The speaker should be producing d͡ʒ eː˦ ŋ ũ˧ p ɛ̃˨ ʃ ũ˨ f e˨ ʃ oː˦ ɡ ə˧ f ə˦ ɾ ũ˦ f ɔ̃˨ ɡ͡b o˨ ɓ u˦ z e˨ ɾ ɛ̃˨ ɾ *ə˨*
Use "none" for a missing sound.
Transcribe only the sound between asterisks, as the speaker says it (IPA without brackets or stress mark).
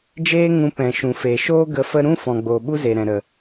ə˨